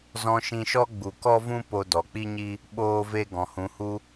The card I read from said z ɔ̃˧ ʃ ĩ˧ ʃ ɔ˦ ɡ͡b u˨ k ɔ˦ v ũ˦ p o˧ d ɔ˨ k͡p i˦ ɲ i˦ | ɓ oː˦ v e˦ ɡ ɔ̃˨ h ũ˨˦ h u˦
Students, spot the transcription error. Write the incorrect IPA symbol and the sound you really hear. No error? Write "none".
none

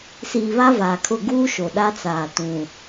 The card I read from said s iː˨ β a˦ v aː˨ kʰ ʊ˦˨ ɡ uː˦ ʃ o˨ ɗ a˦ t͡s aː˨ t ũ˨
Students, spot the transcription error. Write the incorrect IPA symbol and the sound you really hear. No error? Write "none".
none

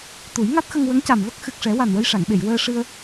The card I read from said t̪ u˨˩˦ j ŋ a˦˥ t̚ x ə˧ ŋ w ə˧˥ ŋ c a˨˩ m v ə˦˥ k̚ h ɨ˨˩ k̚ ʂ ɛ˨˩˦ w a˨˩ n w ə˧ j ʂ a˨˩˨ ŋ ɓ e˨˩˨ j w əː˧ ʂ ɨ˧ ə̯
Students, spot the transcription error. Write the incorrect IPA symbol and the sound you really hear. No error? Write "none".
h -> x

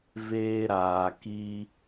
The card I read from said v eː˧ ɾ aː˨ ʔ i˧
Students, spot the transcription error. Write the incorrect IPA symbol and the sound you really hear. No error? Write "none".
ʔ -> k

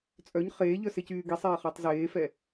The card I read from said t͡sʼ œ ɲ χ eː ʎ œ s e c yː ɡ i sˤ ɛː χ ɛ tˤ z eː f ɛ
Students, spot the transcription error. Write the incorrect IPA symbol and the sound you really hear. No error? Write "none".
none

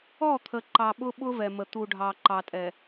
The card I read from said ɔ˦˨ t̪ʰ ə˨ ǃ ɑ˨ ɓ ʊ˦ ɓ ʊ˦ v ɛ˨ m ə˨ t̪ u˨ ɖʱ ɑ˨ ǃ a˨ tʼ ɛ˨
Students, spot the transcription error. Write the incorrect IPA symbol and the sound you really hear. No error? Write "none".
a˨ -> ɑ˨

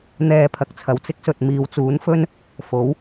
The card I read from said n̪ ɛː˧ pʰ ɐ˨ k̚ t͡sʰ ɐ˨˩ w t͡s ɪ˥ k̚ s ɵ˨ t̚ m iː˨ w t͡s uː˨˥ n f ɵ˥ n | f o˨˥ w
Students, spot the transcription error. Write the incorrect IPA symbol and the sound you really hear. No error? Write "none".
none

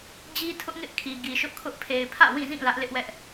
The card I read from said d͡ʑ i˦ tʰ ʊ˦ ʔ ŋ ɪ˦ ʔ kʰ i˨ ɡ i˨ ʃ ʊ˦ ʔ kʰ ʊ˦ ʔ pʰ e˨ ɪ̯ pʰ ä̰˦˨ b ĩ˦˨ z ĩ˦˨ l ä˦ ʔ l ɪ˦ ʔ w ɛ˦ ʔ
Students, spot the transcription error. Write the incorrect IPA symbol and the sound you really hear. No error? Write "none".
b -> w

